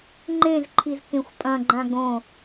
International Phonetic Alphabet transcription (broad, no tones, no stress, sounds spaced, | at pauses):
ŋ͡ǃ ẽ z ǃʰ i z k ẽ xʷ pʼ ɐ̃ ɡ͡ǃ ã ɡ õ